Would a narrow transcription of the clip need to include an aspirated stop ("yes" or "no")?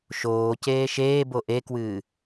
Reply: no